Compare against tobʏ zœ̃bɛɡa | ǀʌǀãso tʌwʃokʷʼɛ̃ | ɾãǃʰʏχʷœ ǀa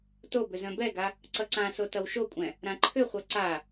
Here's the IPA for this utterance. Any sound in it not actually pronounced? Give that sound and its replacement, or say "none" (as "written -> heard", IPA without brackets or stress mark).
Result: none